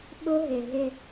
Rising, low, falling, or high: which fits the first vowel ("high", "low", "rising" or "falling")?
high